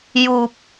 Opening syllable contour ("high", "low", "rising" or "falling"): low